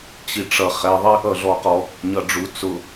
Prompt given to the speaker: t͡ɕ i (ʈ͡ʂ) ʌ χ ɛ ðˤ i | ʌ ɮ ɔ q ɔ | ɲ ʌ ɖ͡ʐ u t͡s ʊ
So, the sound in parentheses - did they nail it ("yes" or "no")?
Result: yes